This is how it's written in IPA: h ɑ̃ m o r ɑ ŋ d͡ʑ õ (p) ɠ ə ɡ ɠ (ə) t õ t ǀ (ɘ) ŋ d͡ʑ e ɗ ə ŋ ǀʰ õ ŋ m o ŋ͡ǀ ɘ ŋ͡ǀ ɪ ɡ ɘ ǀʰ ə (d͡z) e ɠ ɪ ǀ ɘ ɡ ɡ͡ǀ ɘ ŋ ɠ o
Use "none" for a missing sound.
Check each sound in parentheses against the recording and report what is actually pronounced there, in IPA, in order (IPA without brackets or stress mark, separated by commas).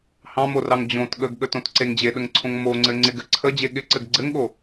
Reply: t, ə, e, d͡ʑ